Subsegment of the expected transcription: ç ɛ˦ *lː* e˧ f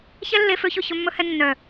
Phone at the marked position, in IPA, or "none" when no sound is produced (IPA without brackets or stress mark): lː